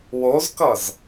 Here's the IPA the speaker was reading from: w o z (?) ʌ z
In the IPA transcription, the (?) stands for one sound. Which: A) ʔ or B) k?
B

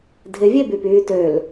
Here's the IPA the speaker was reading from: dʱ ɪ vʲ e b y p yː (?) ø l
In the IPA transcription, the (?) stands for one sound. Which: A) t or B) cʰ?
A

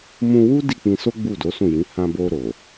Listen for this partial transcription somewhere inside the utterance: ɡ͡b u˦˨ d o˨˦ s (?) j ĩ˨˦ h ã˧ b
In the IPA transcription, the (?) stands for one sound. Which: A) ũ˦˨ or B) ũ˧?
A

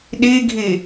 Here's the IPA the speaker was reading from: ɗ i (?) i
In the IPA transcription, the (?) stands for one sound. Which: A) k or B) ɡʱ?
B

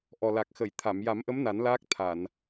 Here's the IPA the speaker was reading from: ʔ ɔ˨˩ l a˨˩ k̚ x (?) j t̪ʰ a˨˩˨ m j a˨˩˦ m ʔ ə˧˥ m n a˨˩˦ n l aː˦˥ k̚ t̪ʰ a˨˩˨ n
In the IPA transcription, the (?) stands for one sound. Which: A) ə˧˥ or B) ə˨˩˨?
B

